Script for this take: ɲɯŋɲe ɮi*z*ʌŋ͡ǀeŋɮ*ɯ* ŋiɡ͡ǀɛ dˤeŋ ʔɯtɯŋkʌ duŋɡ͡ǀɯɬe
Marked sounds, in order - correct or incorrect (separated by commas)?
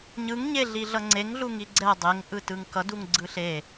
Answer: incorrect, incorrect